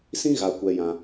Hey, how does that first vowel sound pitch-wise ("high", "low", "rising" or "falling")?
high